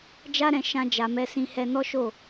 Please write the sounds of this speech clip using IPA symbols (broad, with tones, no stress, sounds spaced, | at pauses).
d͡ʒ a˦ ɾ ɛ̃˧ ʃ ã˧ d͡ʒ a˨ m ɛ˨˦ s ĩ˧ h ɛ˧ n ɔ˦ ʃ o˦˨